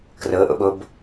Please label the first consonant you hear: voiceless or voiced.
voiceless